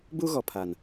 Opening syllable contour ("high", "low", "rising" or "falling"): high